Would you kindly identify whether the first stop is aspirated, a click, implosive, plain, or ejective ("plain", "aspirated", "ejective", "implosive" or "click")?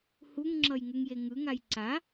click